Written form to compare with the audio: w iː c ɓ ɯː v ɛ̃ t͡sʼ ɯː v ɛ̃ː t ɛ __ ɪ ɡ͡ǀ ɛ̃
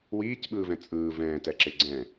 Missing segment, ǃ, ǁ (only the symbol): ǁ